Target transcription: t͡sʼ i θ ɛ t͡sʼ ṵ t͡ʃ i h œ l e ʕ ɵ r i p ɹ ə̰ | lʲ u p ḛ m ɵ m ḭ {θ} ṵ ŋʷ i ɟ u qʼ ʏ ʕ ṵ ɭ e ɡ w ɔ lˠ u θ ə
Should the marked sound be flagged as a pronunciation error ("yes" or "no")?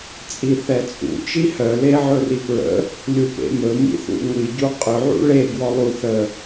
no